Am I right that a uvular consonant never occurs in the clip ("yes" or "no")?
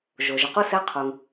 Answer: no